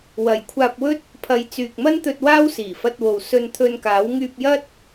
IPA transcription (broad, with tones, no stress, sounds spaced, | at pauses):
w ɐ˨ j kʷʰ aː˧ p̚ w ɵ˥ t̚ | pʰ ɐ˨˧ j t͡s yː˨ k̚ m ɐ˥ n t̪ ɵ˧ t̚ w aː˥ w s iː˨˩ f ɐ˧ t̚ w o˨ w s ɵ˧ n t̪ʰ ɵ˧ n k aː˨˥ w ŋ yː˧ p̚ j ɐ˥ t̚